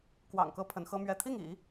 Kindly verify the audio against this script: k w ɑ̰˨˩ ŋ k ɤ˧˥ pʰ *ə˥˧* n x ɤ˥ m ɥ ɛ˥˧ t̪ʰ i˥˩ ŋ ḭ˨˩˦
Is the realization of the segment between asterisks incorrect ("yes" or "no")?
yes